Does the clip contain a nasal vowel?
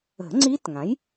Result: yes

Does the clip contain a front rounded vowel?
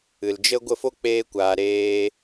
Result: no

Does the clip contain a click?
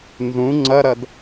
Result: yes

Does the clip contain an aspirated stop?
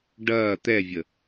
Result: no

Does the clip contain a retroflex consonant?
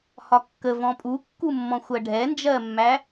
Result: yes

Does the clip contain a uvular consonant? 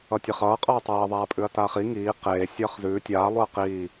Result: yes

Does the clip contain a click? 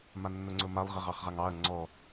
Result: yes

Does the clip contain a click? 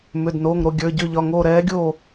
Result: no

